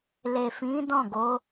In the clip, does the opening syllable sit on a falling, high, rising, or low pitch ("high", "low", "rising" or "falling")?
low